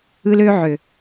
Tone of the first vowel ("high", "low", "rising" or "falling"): high